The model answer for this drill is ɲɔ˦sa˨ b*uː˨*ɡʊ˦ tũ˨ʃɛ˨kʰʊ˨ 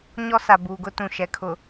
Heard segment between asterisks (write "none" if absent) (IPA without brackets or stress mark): uː˨